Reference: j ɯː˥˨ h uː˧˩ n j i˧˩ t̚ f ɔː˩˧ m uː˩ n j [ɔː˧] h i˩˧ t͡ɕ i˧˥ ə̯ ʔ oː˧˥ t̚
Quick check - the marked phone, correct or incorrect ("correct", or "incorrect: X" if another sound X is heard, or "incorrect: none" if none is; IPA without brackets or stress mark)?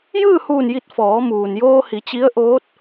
incorrect: oː˧